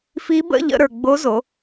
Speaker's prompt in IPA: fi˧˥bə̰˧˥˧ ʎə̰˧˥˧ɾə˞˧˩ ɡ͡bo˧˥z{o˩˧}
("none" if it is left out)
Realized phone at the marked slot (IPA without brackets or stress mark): o˩˧